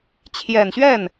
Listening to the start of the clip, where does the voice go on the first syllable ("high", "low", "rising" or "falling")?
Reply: low